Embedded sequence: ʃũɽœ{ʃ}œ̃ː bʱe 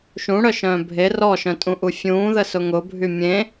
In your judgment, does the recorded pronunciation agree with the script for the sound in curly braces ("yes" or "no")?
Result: yes